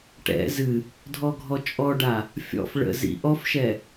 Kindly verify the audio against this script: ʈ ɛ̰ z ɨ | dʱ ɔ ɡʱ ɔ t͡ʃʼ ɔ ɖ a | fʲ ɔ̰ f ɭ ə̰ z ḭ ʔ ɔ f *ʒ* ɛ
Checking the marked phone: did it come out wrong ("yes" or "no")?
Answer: yes